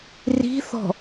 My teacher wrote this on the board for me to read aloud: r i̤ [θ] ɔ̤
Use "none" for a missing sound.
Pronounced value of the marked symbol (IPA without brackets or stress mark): θ